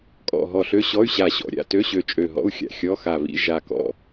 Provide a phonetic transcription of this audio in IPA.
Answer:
kʼɔ̰˧˩ ɦɔ˧˩ɬø˧˥˧ɕɔ˧˥˧y̯ ɕa˧˩ɕɔ̰˧˩ ɾʲa̰˧˩tø˧˥˧ɕø˧˩ t͡ʃʼø˧˩ɦɔ̰˧˥˧u̯xʲa̰˧˩ xʲɔ˧˥˧xa˧˩βḭ˧˥˧ ʒa˧˩kɔ̰˧˩

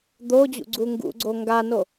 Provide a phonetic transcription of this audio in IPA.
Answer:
d̪od͡ʑṵ ɡ͡ǀuŋɡṵɡ͡ǀo ŋɡano

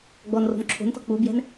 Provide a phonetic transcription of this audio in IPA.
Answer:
ɡ͡bɔnro̤n ǁʰo̤ntɔ̤ k͡pubjɛ̤n

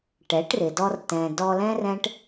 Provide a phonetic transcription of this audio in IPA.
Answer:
ʈɛ˨˦ʈrɪ˨dɔ˧r tɛ̃˨dɔ˧lɛ̃˦r ɛ̃˦ʈ

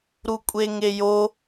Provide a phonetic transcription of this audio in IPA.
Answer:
ɾukʷʼeŋejo

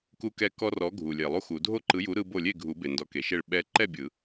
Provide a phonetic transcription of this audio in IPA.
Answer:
ku˦kɛ˦ kɔ˦rɔ˨˥ɡʱu˨lʲe˨˩˦lˠ u˦xu˨˩˦ dʱo˥˨ǃɯ˨˥ju˨˥ ɾɯ˦ bo˥˨ lʲe˥˨ɡʱu˨˩˦ be˨ndɔ˨˥ke˨ʃe˥˨ɭ ɓɛ˦ ǃɛ˥˨bʲɯ˨˩˦

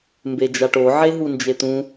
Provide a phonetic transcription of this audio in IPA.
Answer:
mbed͡ʒaʈo ʕeɦund͡ʒet̪ũ

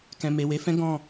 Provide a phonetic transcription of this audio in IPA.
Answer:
kɛ̃˨me˨we˨˦fɛ̃˦ ɡɔ̃˦˨

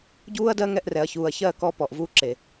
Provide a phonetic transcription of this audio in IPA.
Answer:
ɟuː˦ɐ̯dɜ˦ŋɛ˧ʔrɛ˨ɐ̯ çuː˨ɐ̯ çɜː˦˨ kɔ˧ pɔ˨ʔvuː˦ǁe˨

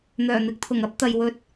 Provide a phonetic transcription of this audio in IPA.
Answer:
n̪œː˨˩n̪ɪ˨˥k̚t̪ʰʊ˨˩ŋɐ˥p̚ t̪ɐ˨jwɵ˧t̚

